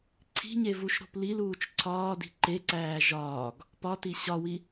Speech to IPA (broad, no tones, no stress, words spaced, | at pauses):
ǀʰi̤ɲe vuʃɾo̤pliluːt͡ʃ ǀʰɒːdi̤ ǃeǀæː ʒɒːɡ | pɒti ɕɒwi